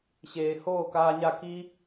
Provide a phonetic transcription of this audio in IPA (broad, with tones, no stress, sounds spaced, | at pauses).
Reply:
ɕ eː˨ h oː˦˨ k aː˧ ɲ a˦˨ k i˦